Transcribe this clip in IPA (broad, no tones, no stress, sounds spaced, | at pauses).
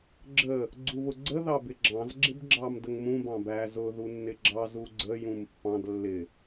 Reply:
ɡ͡ǁ ə | ɡ͡ǀ u β ʊ ɡ͡ǀ ə ð ɑ b ɪ ɡ͡ǁ ɑ̃ z ɡ͡ǁ ɪ b ɡ͡ǁ ɑ m d ə ŋ m ũ b ɑ̃ b æ z ʊ ð u nː ɪ ɡ͡ǁ ɑ z u ɡ͡ǀ ə j ũ m pː ɑ̃ d lː ɪ